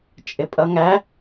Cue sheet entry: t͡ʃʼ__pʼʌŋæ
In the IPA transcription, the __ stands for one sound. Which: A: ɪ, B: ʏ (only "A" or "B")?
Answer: A